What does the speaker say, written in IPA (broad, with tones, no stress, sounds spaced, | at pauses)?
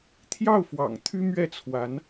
t̪ʰ j ɑ˥˩ ʊ̯ f w ɑ̰˨˩ ŋ t̪ʰ y˥ m ɥ ɛ˥˩ t͡sʰ w a˧˥ n